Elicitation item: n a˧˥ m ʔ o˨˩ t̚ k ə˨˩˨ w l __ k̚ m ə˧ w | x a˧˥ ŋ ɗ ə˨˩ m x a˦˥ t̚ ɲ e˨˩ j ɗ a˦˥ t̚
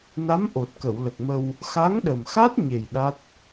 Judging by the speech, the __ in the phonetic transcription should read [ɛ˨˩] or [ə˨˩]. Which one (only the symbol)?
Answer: ə˨˩